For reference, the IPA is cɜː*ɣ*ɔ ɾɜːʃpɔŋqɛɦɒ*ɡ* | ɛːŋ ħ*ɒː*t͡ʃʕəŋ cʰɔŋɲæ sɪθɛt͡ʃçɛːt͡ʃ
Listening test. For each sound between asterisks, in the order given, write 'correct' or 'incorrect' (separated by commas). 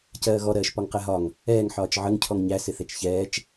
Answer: correct, incorrect, correct